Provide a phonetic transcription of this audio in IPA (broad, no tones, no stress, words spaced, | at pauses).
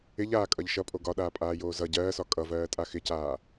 ɪʎaːkʼʌʎ ʃʌpʼo ɡɒɗaːpʼaːjoː zʌ ɟɜːsɒ kʼʌvɜːtʼa xɪcaː